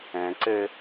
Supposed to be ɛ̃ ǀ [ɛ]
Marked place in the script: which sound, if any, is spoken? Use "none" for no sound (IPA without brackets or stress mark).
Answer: ɘ